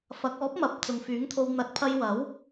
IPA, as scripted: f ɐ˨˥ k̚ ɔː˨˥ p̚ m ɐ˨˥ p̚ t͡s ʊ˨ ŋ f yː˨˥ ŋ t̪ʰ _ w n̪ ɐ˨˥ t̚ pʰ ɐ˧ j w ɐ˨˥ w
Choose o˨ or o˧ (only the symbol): o˧